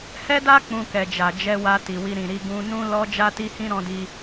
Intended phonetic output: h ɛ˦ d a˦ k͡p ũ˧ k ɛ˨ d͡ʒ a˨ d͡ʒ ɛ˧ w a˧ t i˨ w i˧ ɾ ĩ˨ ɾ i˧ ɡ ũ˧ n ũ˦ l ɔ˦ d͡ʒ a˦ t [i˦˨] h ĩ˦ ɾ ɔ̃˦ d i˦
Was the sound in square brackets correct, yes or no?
no